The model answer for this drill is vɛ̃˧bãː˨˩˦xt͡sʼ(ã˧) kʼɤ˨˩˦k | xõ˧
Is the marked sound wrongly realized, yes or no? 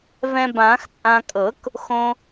no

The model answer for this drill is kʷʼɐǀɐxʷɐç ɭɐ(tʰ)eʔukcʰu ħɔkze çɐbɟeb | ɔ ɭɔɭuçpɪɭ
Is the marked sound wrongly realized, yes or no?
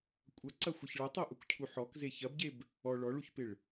yes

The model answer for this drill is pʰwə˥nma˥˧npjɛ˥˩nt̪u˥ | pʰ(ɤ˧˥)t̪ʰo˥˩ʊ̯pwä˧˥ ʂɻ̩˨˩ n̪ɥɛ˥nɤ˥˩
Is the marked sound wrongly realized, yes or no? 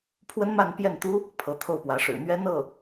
no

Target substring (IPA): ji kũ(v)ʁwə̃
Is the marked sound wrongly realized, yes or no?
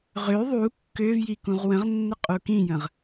yes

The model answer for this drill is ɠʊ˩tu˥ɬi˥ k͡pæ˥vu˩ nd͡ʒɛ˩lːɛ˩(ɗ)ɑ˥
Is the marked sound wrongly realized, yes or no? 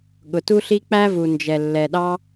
no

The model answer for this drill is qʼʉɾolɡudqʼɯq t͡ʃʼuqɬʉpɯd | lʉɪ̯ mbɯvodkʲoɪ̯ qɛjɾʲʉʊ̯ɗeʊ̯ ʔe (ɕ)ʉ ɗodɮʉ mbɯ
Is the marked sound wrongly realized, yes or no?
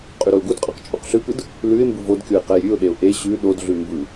no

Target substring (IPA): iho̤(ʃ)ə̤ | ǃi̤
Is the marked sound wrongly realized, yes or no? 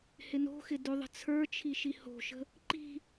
no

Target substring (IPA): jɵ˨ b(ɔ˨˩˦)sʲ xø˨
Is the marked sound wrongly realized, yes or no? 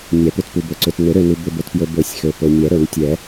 yes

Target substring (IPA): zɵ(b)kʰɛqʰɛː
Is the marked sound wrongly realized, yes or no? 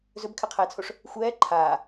no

